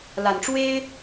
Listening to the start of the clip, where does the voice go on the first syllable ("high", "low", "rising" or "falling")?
low